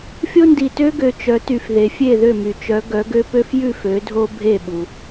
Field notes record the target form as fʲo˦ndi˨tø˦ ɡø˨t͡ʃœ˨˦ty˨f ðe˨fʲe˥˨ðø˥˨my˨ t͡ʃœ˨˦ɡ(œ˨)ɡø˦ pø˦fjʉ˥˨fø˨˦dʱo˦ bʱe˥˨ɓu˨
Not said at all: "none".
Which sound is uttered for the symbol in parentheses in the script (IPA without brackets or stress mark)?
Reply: œ˨˦